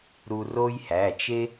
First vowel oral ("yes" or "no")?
yes